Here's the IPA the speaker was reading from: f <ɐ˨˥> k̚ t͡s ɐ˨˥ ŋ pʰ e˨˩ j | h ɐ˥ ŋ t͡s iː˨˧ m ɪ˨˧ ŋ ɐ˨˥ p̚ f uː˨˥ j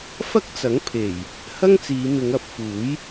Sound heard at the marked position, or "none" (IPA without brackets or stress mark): ɐ˥